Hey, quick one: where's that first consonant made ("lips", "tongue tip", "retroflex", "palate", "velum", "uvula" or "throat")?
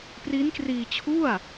lips